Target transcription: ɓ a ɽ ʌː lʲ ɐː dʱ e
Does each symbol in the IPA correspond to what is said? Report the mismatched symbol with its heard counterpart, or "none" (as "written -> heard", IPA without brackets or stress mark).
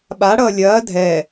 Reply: e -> ɛ